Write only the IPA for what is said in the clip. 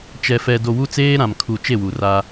t͡ʃɛ˨ fɛ˨ do˨wu˦t͡seː˦ ɾã˨mkʰu˨ t͡ʃe˦˨wu˨ra˦

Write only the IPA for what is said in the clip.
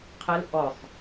qʰɛl ʔɔsˤ

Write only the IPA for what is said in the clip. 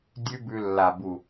dʲʉ˦bʉ˧lːa˨bu˨

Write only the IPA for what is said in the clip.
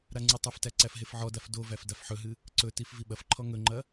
ɾaŋ͡ǀɨtˤɐftæ ǀæfɦefʕɔdaf dovæf dafħɵɦɨ | ǀɵtif viɓɐfǃʰɔ ŋɵŋ͡ǃɐ

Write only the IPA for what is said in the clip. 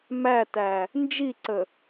mætæ | nd͡ʒiǀə

